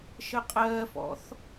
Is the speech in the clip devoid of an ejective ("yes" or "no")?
no